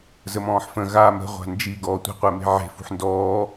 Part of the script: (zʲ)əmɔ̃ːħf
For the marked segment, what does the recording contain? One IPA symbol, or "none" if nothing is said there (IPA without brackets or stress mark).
z